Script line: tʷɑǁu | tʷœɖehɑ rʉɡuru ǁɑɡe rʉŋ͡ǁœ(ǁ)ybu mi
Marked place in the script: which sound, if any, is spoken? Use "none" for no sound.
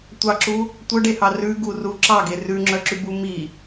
ǁ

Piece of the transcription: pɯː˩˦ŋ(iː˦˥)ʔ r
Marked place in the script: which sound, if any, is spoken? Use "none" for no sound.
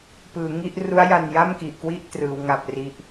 i˦˥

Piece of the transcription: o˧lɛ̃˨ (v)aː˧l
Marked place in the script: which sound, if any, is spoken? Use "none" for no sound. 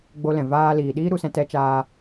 v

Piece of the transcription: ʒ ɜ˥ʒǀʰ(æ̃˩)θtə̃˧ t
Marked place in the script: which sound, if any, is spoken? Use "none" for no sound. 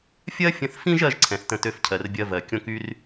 ɛ̃˩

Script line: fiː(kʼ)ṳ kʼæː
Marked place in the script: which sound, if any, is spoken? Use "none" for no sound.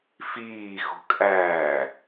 x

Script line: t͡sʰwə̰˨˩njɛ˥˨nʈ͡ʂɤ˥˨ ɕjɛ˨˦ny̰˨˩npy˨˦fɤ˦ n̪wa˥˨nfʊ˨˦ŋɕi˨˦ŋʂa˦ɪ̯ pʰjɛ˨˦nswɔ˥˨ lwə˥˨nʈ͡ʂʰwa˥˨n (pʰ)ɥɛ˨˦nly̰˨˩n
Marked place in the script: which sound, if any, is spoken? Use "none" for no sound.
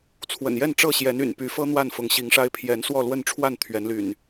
t̪ʰ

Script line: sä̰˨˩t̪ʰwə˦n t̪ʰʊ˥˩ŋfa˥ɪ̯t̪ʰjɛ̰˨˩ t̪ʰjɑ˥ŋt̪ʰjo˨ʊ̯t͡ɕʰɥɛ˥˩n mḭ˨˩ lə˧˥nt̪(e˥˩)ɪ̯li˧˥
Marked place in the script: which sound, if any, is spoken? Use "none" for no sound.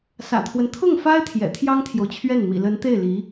e˥˩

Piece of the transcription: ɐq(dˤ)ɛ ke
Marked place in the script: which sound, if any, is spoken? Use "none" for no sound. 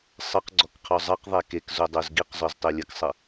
ðˤ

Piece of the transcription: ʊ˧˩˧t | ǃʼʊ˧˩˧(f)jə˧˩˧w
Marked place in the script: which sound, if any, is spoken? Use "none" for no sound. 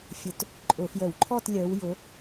f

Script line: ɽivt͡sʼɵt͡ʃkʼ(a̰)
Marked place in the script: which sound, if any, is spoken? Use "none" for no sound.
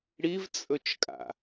a̰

